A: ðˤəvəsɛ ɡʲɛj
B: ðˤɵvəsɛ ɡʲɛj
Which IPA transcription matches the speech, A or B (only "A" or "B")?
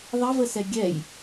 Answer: A